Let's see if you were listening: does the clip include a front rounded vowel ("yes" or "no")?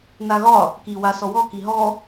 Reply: no